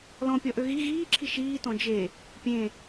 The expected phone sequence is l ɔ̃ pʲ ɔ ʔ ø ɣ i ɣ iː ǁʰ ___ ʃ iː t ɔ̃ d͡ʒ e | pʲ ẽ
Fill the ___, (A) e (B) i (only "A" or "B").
B